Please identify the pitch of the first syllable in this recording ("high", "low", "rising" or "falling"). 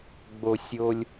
low